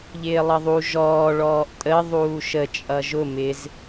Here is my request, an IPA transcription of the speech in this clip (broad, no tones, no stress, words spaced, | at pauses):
ʎɪːlˠʌðˤu ʒɔː ɭɔːʔtʼə ðˤuːʃə t͡ʃʼʌʒʊ mɪz